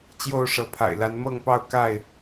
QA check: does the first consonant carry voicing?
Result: no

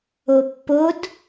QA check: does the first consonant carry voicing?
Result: no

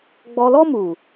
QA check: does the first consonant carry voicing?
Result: yes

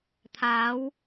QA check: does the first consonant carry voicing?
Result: no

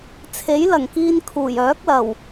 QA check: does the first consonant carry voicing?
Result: no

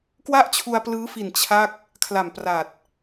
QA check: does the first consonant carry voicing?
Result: no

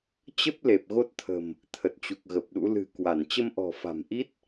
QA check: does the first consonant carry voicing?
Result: no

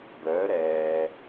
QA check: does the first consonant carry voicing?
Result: yes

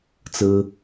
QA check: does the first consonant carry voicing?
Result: no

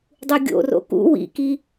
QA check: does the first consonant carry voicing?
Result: yes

